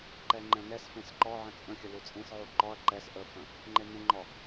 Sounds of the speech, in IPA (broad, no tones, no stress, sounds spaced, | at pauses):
ǃ ɛ ŋ͡ǃ ɛ̃ n ɛ s f ẽ s ǃ ɔ ʕ ə̃ t͡sʼ ə̃ xʲ ə l u t͡sʼ ẽ s ʕ u ǃ ɔ ɐ̯ ǃ ɛ s ʔ ə f ə̃ | ŋ͡ǃ e n ə̃ ŋ͡ǃ ɔ